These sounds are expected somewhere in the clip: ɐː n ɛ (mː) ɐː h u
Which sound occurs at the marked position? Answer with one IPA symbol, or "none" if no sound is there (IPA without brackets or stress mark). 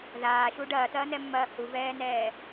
mː